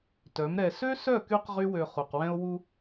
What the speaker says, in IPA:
t œ˨˦ m ɾ ɛ˧ s ø˦ s œ˦˨ k y˧ q ʁ y˦ w ø˧ χ u˨ q w ɛ̃˦ o̯ w u˧

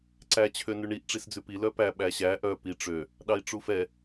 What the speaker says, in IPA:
ǀ æ t͡ɕʰ ø n ʉ ɳ i ʔ ʈ͡ʂ i s d͡z ʉ p i l œ p æ ɓ æ ɕ æ ʔ œ p i ʈ͡ʂ ø | ɗ ɑ i̯ ʈ͡ʂ u f ɛ

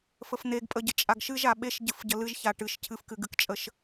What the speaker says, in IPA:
f ə f n̪ e ɡ pʼ ə ɟ ə t͡ʃʼ a ɡ ʃ ɨ ʒ a ɓ e ʃ ɟ ɨ f ɟ ə l ɨ ʒ ç a ʈ ɨ ʃ cʰ ɨ f k ɨ ɡ ɨ k t͡ʃʼ ə ʃ

